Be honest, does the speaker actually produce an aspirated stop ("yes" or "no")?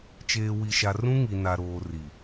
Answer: no